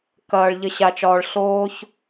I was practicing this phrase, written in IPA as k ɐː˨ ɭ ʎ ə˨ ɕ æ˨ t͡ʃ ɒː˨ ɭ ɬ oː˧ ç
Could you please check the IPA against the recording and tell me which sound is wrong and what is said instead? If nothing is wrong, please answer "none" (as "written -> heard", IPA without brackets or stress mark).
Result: æ˨ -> a˨